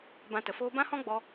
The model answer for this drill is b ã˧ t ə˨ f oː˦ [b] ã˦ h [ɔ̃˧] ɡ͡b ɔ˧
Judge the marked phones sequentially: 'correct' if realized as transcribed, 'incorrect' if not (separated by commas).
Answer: correct, incorrect